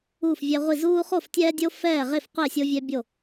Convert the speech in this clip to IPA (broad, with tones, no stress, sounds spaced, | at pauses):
uː˥˨ f vʲ ɛ˦ ʁʷ i˥˨ z uː˦ χ o˥˨ f tʲ ɛː˦ dʲ o˦ f ɛː˥˨ ʁ e˥˨ f qʷ e˥˨ sʲ o˦ vʲ ɛ˦ bʲ o˥˨